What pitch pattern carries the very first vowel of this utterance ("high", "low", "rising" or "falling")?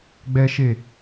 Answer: high